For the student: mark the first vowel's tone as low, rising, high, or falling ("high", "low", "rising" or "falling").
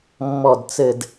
low